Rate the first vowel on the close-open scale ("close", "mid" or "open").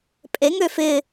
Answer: mid